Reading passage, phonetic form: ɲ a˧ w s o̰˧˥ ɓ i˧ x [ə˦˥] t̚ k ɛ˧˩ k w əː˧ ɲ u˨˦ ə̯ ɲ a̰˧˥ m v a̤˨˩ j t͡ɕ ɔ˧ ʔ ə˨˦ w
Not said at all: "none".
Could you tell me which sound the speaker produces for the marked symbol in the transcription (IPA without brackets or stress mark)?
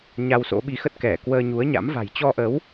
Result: ə˦˥